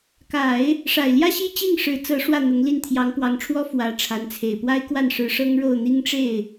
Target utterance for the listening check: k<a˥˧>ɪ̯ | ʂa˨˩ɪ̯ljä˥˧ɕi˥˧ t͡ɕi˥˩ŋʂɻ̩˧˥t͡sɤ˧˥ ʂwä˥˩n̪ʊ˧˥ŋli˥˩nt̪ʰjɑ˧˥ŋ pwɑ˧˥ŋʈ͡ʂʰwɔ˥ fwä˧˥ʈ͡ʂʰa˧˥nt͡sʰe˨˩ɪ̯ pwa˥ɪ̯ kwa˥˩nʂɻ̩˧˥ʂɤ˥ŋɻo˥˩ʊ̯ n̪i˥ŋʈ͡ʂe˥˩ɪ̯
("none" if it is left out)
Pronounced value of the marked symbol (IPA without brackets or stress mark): a˨˩˦